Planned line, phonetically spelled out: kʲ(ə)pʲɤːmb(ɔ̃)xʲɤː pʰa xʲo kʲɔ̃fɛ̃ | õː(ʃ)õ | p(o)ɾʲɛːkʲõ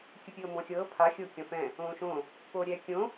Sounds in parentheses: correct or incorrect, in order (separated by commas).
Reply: incorrect, correct, correct, incorrect